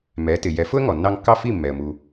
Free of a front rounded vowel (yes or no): yes